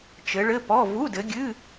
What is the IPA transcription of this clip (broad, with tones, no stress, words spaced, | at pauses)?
t͡ʃɘ˨˦ɭɘ˧˥˧pɔ˧˥˧ vu˧˥˧dɘ˨˦ɡʲɨ˧˥˧